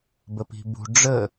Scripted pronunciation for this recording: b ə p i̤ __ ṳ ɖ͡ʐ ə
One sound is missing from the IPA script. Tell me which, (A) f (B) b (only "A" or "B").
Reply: B